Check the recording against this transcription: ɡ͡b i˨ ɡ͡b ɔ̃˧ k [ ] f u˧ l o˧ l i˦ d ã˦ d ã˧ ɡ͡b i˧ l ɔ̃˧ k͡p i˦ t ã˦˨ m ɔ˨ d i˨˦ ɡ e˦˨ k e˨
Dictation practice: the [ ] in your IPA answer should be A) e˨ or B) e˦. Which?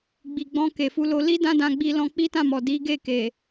A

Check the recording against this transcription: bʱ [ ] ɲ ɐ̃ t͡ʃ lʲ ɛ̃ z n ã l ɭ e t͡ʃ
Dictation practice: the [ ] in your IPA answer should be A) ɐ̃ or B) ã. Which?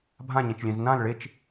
B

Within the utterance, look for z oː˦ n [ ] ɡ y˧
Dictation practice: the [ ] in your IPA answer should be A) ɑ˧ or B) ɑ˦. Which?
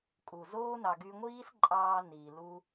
A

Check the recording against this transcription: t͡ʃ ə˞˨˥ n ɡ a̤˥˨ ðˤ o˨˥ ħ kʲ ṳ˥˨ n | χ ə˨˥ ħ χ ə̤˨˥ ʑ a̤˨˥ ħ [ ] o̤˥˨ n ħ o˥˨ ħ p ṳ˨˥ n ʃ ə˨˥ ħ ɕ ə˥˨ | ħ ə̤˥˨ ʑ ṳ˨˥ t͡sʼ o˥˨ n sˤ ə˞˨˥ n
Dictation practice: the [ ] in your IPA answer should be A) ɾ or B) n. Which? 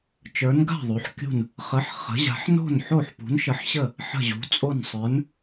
B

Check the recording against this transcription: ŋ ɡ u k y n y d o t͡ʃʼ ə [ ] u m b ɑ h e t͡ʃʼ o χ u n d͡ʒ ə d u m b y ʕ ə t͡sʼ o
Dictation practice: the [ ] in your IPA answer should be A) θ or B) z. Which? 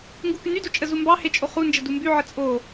B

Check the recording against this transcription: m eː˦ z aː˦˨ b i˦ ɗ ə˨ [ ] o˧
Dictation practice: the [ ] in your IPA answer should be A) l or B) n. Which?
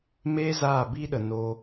B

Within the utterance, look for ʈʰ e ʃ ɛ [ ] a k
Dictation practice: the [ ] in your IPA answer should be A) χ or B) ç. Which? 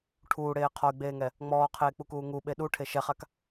A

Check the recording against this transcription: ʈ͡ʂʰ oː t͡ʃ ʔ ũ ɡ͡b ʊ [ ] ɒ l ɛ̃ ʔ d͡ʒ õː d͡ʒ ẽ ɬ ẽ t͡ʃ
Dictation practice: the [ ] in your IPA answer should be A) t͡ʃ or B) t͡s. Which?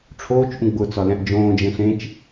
B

